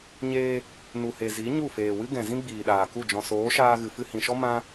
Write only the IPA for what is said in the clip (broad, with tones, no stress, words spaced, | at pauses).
ɲeː˧ | nu˨he˨ zi˨˦ ɲu˦˨feː˨wɨ˦ ɡɛ̃˨ zĩ˦ɡ͡biː˨ɗaː˨ku˦˨ d͡ʒɔ̃˨soː˨˦ʃaː˧ ɣɨ˨fɨ˧hĩ˨ʃɔ˦ mã˦